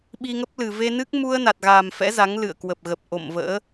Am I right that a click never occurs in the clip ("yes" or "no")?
yes